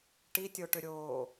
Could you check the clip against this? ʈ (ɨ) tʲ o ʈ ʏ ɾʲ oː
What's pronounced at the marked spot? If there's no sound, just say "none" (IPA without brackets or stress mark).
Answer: i